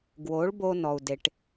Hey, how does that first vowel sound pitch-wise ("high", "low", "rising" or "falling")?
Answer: rising